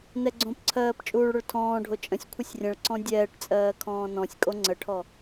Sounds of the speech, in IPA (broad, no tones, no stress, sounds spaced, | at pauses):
n ɛ ɡ͡ǀ õ p ǀʰ ɜː p t͡ʃʼ uː ɭ ɽ ʊ ɭ tʰ ɔ̃ː ɖʱ o t͡ʃʼ ə̃ sʲ kʷʰ ə sʲ rʲ ə̃ ɭ ǀ ɔ̃ dʲ ɛː ʈ t͡sʼ ɜː kʰ ɔ̃ː n ɔ̃ sʲ kʼ o ŋ͡ǀ ə ʈʰ ɔ